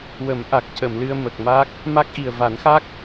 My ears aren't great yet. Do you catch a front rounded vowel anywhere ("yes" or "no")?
no